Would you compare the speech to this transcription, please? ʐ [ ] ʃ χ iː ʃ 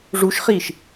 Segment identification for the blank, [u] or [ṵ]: u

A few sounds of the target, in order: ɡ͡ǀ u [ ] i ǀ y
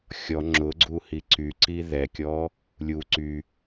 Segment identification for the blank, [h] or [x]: h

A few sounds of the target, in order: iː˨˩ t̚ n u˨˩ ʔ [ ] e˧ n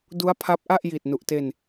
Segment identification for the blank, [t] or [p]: t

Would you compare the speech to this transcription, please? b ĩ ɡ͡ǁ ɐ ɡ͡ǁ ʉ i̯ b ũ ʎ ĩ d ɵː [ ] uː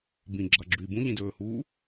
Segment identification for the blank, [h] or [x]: h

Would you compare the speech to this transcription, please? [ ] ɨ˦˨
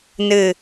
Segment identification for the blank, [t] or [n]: n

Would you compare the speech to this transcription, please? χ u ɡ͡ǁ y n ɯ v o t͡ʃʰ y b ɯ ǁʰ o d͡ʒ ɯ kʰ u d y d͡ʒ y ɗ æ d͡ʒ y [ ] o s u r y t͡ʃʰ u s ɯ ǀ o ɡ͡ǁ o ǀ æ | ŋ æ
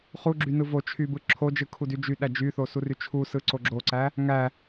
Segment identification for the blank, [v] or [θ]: θ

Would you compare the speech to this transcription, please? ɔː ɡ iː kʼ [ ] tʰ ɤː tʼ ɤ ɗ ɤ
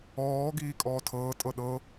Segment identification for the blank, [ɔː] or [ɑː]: ɔː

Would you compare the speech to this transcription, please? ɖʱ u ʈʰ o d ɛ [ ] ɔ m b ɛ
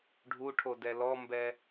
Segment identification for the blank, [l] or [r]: l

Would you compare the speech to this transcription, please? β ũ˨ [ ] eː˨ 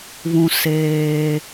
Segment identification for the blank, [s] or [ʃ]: s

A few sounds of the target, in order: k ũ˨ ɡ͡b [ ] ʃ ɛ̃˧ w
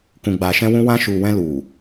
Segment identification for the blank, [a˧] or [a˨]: a˨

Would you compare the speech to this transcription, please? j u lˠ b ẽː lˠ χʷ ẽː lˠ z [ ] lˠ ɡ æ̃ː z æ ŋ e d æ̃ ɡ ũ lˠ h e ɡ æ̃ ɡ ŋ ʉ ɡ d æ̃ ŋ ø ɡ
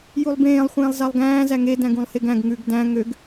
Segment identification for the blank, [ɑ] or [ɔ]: ɑ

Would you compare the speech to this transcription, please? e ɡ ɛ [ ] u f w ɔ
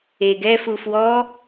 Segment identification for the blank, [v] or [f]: f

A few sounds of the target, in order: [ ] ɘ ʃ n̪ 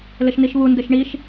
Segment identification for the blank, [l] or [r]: l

